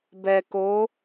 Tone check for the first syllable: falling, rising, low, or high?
low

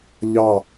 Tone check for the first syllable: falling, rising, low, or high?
falling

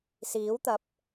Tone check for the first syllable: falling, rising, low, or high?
rising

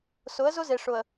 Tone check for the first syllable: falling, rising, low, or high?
rising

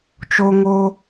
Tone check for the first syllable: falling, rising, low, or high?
high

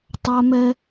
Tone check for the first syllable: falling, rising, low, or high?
high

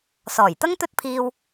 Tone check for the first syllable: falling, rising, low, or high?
low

